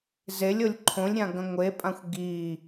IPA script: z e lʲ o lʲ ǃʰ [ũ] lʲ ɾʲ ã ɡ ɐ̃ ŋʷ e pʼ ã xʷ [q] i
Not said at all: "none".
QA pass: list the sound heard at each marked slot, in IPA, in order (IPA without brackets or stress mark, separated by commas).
õ, ɡ